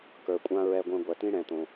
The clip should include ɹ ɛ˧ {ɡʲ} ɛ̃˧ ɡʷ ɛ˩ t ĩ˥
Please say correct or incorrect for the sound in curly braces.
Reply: incorrect